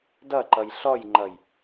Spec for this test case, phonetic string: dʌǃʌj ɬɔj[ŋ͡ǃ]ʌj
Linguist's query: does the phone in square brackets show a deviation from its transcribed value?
no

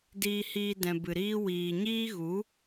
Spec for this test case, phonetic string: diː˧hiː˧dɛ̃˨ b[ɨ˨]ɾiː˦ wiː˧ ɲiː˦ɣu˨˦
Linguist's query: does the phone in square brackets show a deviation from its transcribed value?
no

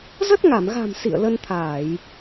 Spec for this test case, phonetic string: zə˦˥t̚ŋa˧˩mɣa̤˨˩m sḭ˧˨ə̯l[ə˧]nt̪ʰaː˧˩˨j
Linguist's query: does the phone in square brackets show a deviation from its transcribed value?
no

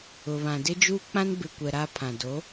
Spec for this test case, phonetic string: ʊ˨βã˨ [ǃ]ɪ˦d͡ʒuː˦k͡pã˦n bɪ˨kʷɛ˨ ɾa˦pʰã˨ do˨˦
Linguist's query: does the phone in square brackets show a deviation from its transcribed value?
yes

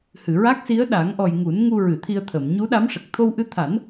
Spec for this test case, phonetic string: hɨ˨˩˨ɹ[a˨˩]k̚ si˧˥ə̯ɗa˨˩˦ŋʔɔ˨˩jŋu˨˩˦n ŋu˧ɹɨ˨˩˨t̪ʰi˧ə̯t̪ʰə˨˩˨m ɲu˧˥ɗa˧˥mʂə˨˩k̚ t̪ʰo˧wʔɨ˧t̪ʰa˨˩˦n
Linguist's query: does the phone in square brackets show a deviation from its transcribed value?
yes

